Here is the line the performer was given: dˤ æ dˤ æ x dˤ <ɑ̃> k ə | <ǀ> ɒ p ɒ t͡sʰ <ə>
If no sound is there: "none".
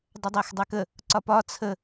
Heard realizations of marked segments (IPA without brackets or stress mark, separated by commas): ɑ, ǀ, ə